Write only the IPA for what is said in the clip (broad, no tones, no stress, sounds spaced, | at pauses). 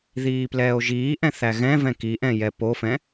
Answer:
ð iː p l ɛː o̯ ʒ iː ʔ ɛ̃ θ æ ɣ ɛ̃ v ɛ̃ k i ʔ ɛ̃ j ɛ p o f ɛ̃